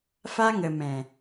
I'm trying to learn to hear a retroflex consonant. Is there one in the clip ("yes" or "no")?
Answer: no